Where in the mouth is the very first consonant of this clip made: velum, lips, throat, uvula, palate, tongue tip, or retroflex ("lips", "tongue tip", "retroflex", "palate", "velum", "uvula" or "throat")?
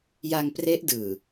palate